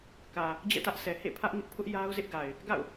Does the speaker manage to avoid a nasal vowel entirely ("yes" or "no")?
yes